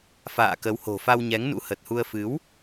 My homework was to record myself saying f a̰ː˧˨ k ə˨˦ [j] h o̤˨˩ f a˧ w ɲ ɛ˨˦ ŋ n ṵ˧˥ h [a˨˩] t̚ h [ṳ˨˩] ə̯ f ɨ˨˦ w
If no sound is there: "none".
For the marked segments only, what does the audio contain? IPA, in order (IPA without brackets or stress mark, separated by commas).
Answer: w, ə˨˩, u˧